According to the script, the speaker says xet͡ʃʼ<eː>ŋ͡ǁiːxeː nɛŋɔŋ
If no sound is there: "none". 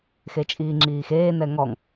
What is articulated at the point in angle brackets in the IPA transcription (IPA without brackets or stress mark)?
iː